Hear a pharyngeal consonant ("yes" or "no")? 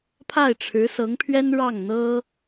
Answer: no